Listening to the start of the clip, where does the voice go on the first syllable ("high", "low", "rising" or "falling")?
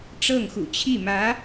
falling